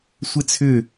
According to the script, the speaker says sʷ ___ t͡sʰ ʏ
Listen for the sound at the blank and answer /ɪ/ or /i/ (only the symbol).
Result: ɪ